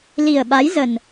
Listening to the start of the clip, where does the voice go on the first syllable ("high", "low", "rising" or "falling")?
low